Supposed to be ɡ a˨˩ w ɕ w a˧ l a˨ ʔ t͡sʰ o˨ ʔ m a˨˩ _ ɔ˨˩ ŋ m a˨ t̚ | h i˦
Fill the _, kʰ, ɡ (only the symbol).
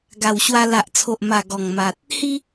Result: ɡ